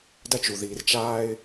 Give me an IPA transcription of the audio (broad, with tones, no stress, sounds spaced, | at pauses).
d ɐ˦ t͡ʃ u˨ ð iː˨ r t͡ʃ aː˦ ɪ̯